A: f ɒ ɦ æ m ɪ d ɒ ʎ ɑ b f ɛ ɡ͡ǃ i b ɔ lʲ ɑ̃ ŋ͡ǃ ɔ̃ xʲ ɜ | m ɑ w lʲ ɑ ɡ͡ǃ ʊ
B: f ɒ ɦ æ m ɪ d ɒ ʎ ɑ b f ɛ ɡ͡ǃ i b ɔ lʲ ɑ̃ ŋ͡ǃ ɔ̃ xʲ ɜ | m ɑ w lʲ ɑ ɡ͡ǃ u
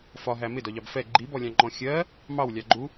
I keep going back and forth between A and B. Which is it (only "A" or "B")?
B